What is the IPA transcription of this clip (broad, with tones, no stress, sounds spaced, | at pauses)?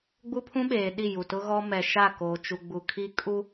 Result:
ɡ͡b u˦ pʰ ũ˦ ɓ eː˨ ɗ i˦˨ j u˨ t ʊ˦ ɣ ɔ˦ m ɛ˨ ʃ a˦˨ k oː˨ t͡ʃ u˨ ɡ͡b u˨ kʰ i˦ kʼ u˦